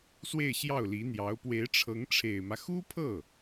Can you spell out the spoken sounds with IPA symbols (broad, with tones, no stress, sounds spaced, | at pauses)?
s w e˥˧ ɪ̯ ɕ j ɑ˥˩ ʊ̯ l i˧˥ n̪ j ɑ˧˥ ʊ̯ p w e˧˥ ɪ̯ ʈ͡ʂʰ ɤ˧˥ ŋ ʈ͡ʂʰ e˨˩ ɪ̯ m ä˦ x u˥ pʰ ɤ˥˩